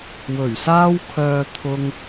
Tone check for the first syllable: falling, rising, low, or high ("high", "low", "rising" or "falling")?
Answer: low